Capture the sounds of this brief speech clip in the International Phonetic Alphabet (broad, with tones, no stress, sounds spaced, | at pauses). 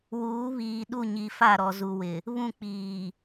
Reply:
w uː˨˦ β iː˨ ɗ u˦˨ ɲ i˨ f a˦˨ ɾ ɔ˨ z u˨ w ɪ˨ | β ũ˦˨ k͡p iː˨